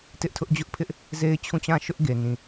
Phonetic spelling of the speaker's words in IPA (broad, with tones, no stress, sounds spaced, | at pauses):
t ɪ˦ ʔ tʰ ʊ˦ ʔ d͡ʑ ʊ˦ ʔ pʰ ɪ˦ ʔ | z e˦ ɪ̯ t͡ɕʰ ũ˦˨ t͡ɕ ã˦˨ ʃ ʊ˦ ʔ ɡ e˨ n ĩ˨